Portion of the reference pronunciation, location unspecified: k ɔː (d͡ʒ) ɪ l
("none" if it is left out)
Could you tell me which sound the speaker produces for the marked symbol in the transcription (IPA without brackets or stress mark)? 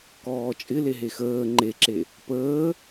t͡ʃʼ